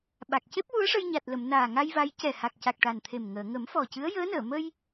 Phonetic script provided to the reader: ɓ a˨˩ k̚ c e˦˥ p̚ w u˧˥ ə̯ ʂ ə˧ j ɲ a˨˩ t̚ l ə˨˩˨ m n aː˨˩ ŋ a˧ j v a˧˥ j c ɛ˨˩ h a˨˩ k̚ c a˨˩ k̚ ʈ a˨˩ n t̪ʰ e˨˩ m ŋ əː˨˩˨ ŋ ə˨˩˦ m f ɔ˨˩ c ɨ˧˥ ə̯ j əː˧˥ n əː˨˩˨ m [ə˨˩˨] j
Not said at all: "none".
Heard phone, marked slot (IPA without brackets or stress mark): ə˧